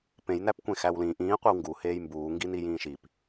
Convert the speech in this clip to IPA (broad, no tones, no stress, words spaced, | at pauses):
pẽjnæpkʷẽ xæwlĩ ʔĩː qʷiwŋɡuheːj mbuː ŋɡinijĩːʃip